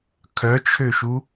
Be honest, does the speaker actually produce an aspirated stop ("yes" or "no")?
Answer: yes